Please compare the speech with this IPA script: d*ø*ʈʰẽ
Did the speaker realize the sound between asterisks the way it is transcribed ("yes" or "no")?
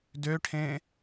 yes